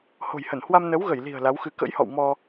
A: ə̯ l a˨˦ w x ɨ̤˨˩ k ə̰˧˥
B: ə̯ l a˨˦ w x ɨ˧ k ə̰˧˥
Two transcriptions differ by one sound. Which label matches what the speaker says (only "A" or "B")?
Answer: B